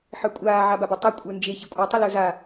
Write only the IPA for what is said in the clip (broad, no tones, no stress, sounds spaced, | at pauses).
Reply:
ħ ə˞ kʷʼ aː ʕ a b a b e tˤ a kʷʼ ə˞ n d͡ʒ e ç i kʷʼ a tˤ y l ə˞ z a